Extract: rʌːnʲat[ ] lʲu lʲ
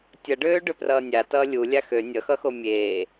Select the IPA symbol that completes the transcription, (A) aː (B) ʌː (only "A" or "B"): B